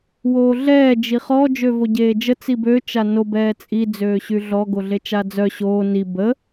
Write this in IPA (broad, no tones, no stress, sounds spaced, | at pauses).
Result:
w oː ɮ ɛː d͡ʒ i χ ɔ d͡ʒ ø v o ɟ eː d͡ʒ ə t͡s i b ø t͡ʃ a n o b ɛː t͡sʼ i d͡z øː ɕ y ɮ ɔ ɡ o ɮ e t͡ʃ a d͡z œ ɕ oː n i b ə